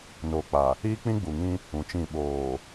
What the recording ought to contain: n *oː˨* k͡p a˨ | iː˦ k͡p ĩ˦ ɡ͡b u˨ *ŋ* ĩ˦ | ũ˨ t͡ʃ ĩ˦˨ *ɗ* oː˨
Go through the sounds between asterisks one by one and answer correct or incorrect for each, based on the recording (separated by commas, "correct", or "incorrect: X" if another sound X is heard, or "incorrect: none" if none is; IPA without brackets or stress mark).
correct, correct, incorrect: ɓ